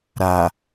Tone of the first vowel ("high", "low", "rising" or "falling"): low